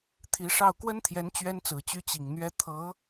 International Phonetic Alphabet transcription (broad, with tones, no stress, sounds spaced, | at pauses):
t̪ʰ i˧˥ ʂ ɑ˥˩ ʊ̯ k w ə˥ n t̪ʰ j ɛ˧˥ n t͡ɕ ɥ ɛ˥ n t͡s ɹ̩˨˩ t͡ɕ y˥ t͡ɕ i˨˩ ŋ n̪ ɥ ɛ˥ t̪ʰ ɤ˧˥